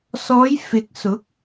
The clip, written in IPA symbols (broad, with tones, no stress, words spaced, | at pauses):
sɔː˨˧jfɪ˨k̚sʊ˨˥k̚